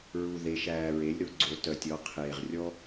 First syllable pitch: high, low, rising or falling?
low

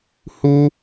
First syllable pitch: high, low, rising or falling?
high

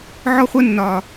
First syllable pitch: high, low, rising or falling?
high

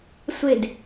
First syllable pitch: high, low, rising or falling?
falling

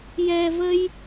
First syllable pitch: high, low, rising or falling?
low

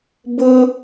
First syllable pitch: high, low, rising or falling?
high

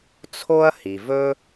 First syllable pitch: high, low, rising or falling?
high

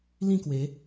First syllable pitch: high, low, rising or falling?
falling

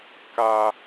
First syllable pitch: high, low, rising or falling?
high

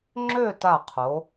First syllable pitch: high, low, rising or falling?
falling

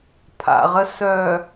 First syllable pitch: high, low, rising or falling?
low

